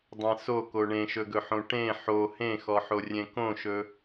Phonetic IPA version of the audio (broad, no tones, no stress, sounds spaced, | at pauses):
dˤ ẽ s o k o ɳ ẽ ʃ ɵ ɡ ɵ ħ õ ʈ ẽ ħ o h ẽ x ɔ ħ o rʲ ẽ k õ ʃ ɵ